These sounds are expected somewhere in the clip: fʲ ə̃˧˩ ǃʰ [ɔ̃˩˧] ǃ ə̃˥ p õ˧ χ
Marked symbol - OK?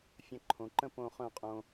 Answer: no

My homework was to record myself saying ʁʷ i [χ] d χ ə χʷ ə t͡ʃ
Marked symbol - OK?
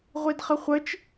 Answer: no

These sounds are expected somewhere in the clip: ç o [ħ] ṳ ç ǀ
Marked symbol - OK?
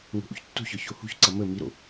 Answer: no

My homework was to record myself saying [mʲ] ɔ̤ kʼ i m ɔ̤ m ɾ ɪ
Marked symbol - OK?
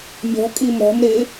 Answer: yes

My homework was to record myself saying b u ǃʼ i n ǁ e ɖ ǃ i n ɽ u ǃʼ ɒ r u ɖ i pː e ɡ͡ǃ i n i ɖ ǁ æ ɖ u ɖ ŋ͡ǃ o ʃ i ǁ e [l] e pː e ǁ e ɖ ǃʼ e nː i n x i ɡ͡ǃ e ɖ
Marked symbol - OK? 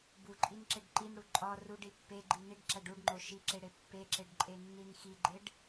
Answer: no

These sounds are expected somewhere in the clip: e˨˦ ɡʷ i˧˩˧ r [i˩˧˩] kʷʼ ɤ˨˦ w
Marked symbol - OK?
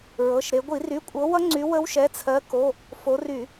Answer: no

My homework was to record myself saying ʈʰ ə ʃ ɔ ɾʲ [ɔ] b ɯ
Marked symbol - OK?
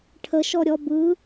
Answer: yes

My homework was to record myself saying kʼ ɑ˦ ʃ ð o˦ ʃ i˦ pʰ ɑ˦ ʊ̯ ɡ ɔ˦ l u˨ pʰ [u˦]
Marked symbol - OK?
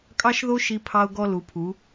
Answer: no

